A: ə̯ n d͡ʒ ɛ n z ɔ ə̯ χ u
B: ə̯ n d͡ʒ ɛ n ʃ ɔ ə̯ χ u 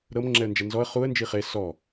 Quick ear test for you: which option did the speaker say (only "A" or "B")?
A